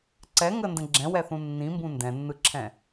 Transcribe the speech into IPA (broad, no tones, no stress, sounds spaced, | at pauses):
ǀ ɛ ŋ ə n d ə̃ ɡ͡ǁ ɛ̃ w ɛ θ ũ nː ĩ m b ũ n d ɛ̃ nː ɯ ǁʰ ɛ̃